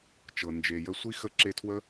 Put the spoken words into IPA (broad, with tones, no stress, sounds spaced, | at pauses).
t͡ʃ ɤ˨ n d͡ʒ e˨ j ə˧ sʷ i˦ x ə˦ ǁ e˦˨ tʰ w ə˦